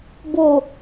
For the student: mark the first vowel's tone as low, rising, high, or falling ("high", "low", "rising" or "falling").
low